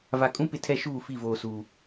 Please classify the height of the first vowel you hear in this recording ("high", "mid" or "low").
low